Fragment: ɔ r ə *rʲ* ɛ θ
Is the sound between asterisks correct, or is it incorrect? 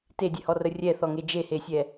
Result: correct